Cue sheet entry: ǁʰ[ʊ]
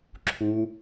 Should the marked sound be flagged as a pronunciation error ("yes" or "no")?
yes